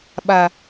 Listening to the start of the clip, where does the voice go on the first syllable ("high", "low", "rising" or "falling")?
low